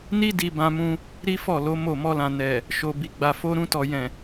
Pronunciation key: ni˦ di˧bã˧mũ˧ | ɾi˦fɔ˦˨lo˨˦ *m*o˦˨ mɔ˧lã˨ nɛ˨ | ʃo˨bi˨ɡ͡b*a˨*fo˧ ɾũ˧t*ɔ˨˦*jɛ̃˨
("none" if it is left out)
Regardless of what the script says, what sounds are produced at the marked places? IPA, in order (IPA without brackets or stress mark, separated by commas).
m, a˨, ɔ˨